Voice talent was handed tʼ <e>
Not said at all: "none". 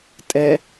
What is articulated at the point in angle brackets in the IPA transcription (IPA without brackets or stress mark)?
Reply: ɛ